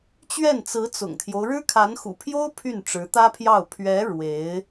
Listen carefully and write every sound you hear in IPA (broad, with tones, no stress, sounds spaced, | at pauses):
t͡ɕ ɥ ɛ˥˩ n t͡s ɹ̩˧˥ t͡s ʊ̰˨˩ ŋ t̪ʰ j o˦ ʊ̯ ɻ ɻ̩˥ kʰ a˧˥ n x ṵ˨˩ pʰ j o˥ ʊ̯ pʰ y˥˩ n ʈ͡ʂ ɻ̩˧˥ t̪ ä˥ pʰ j ɑ˥˩ ʊ̯ pʰ ɥ ɛ˧˥ ɻ w e˧˥ ɪ̯